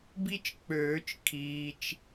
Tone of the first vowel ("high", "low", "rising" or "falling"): high